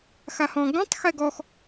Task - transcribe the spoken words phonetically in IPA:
x a h ɔ̃ ɡ õ tˤ x ɛ ɡ ɔ x

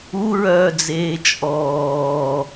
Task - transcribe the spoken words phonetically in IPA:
u ɹ œː d͡z eː t͡ʃʼ ɔː

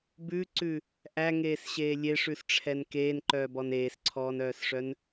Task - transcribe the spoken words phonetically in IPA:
b ʉ ǀ ʉ | ʔ æ ŋ eː s ɕ eː lʲ e ʂ ʉ s ʈ͡ʂʰ ɛ n k eː n ǃ œː b ɔ n eː s ǀʰ ɔː n œː s ʂ œ n

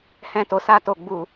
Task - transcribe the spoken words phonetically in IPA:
h ɛ̃˧ t o˨ s a˧ t o˨ ɡ͡b u˨

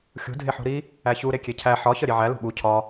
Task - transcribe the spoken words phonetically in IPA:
xʲ ṳ dʱ e ħ ṳ ɾ i | æ ç u ɾ e kʲ e cʰ æ ħ ɒ ç ɒ ɾʲ e ʕ æ l ṳ ɓ u cʰ ɒ

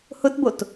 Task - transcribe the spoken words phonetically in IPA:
h ʊ t b o t

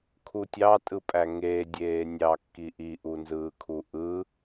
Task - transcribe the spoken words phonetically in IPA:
kʰ u tʲ ɑ tʼ ɯ pʼ æ ŋ eː dʲ eː nʲ ɑ kː i ʔ i ʔ u n z ɯː kʰ u ʔ ɯ

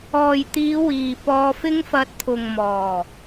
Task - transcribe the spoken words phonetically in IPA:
ɔː˨ j t̪ iː˨˧ w iː˨ p ɔː˧ f ɪ˥ ŋ f ɐ˧ t̚ t̪ʰ ʊ˨ ŋ m ɔː˨˩

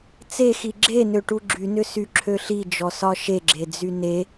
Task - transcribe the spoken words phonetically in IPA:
t͡s e x i ɡ͡ǁ e n ø ʈ u ɡ͡ǁ y n ʏ s y ǁʰ ø ɬ i d͡ʒ ɔ s ɒ ʃ e ɡ͡ǁ e d͡z y n e

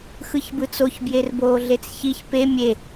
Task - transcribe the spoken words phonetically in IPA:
x ɯ ç b ɯ t͡s o ç b j e r b oː ɮ e t͡s ç i ç p e mʲ e

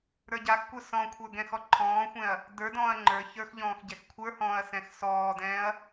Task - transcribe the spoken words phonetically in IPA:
ɾ ə˞ ɟ a x kʷ ə˞ s ɔ̃ kʷʰ ə˞ ɡ ɛ̃ x ɔ ǃʰ ɔ̃ː xʷ ɛ̃ ɐ̯ | d ə˞ d ɔ̃ː ɐ̯ ŋ͡ǃ ə˞ ç ə˞ x ʎ ɔ̃ː x ɟ ɛ x kʷʰ ə˞ h ɔ̃ː ɐ̯ s ɛ̃ x s ɔː d ɛ̃ː ɐ̯

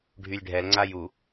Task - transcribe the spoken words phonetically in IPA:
ɖʱ y lʲ ɖʱ ɛ l ŋ͡ǀ a j u

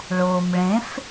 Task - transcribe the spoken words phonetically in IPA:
ɭ ʊː m ɭ ẽ f

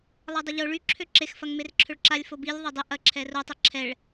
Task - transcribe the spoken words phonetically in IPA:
lˠ a dˤ ə ʎ o ɭ y ǁʰ ø ǁ e x f ɐ ŋ m e r ǁʰ ø ɭ ǁ a lʲ f o b i lʲ ðˤ ø dˤ ɪ ʔ ɐ ǁʰ ɛ r o tˤ ɛ ǁʰ ɛ ɭ

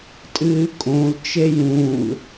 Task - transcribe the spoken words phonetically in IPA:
tʼ ɨː kʼ õ l t͡ʃ e j ũ l

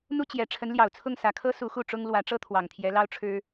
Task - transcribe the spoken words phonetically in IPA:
n̪ u˥ t͡ɕ j ɛ˨˩ ʈ͡ʂʰ ə˧˥ n l j ɑ˨˩ ʊ̯ t͡sʰ ʊ˥˩ ŋ s ä˨˩ kʰ ɤ˥ s u˧˥ x u˥˩ ʈ͡ʂ ʊ˥ ŋ l w ä˧˥ ʈ͡ʂ ɤ˥ t̪ʰ w ɑ˨˩ ŋ t̪ʰ j ɛ˧˥ l ɑ˥ ʊ̯ ʈ͡ʂʰ ɻ̩˥

